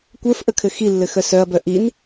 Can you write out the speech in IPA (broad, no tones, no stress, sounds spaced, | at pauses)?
kʷ ə˞ f ʔ ə kʰ ɘ x i lː ɘ x œ s œ ɐ̯ b œ ʔ i n